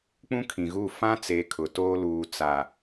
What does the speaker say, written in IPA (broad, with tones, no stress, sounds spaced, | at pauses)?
k͡p ũ˦ kʰ ĩ˨ ɣ u˦˨ f ã˦ t͡s e˨ kʰ ʊ˨ t oː˦ l uː˨ t͡s a˨